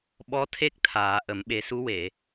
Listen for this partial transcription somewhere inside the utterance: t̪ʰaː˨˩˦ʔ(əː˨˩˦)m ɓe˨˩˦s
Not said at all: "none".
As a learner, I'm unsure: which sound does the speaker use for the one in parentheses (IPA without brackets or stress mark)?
ə˨˩˦